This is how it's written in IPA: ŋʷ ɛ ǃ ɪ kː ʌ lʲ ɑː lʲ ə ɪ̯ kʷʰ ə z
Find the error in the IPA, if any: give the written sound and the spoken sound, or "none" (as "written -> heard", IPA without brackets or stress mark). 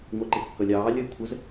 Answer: none